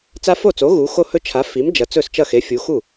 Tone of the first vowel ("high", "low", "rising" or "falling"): high